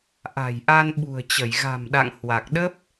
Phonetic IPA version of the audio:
ʔ a̤˨˩ j ʔ a˧ n ɓ ṳ˨˩ ə̯ t͡ɕ ə˧˩ j ɣ a̤˨˩ m ɗ a̰˧˨ ŋ h w a˨˩ k̚ ɗ ə˦˥ p̚

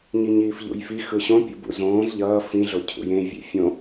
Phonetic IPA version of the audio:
ɲ i ɲ iː f ʎ ṵ j f i x ɯ ɕ õ pʲ ṵ b ṵ z õː z ʎ ʌː f ĩ ɮ o cʰ ṵ j ẽ vʲ ḛ fʲ õ

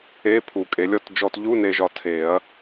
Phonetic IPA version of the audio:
e˧˥˧ pʰ u˨˩˦ kʼ e˨˩˦ lʲ ɔ˧˥˧ t d͡ʒ ɔ˧ t ʎ u˧˥˧ n e˧ ʒ ɒ˧ tʰ e˨˩˦ ɐ̯

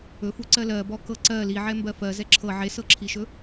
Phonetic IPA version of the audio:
ɵ f u ǀ ɜ l ɜ b ɔ k ɤ ǀ ɜ l i ʕ ɛ m b ɜ f ɜ z ɛ ǁʰ ɤ ʕ e s ɤ ǁʰ i ʃ ɵ

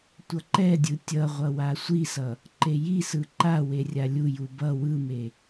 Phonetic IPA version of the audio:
tʷ ʌ ǃ ɛ dʲ ɯ tʲ ʌ ʁʷ ʌ w a sʷ i s ʌ | ǃ e j i s ɯ ǃ a w e rʲ a lʲ u j u b ʌ w ɯ m e

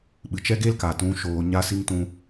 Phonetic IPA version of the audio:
ɓ ɨ˨ t͡ʃ ɛ˦ ɡ e˦ l k a˨ t ũ˧ ʃ oː˧ ɲ a˦ s i˦ ŋ t ũ˦

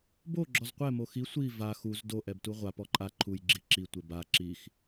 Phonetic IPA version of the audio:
b o ɡ͡ǁ ɔ z qʷ ɛ m o x i sʷ i v a x u z d o ʔ ɛ b t u ʁʷ a p ɔ ǃʼ a ǃʰ u j ɡ͡ǁ i ǁ i tʷ e b a ǁ i x

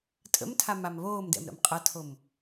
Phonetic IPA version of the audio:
tʼ ə̰ m tʰ a m a m β oː m d ɛ̰ m ɾ ə̰ m qʼ ɐ tʰ o m

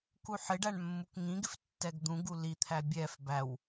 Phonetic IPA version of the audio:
k u ħ ɪ ɖ æ ɳ mː u k ŋ ĩ ɡ ɪ f tː ɛ ɡ d̪ ũ ɡ u l i t̪ʰ æ bʲ ɛ f b æ w

